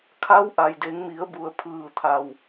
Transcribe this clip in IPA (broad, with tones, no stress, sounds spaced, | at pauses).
kʰ a˧˥ w ʔ a˩ j d e˩˧ ŋ m i˩˧ ə̯ b u˩˧ ə̯ pʰ ɯː˧˩ t̪ʰ a˩ w